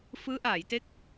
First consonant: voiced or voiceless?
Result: voiceless